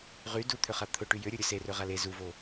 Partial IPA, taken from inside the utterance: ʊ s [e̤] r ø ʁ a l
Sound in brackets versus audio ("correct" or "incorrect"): incorrect